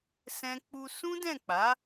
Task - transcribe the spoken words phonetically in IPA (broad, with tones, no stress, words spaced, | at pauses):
sɛ̃˦ k͡pu˧sũ˦dɛ̃˦˨k͡pa˨˦